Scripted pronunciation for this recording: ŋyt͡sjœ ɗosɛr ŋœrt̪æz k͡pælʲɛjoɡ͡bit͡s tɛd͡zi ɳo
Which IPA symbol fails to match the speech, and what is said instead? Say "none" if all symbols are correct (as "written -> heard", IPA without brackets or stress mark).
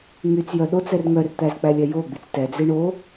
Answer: s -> t͡s